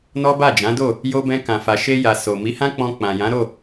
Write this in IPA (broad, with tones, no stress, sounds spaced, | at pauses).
n ɔ˦ b a˦˨ d͡ʒ ã˨˦ d o˦˨ | j o˧ b ɛ̃˧ k ã˨ f a˨ ʃ e˧ j a˨ s o˨ m i˨˦ h ã˦ k͡p ɔ̃˧ k͡p ã˨ j ã˨˦ ɾ o˦˨